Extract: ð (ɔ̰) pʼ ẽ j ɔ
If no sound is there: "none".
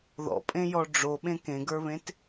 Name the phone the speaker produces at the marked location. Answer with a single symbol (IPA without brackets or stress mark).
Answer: ɔ̰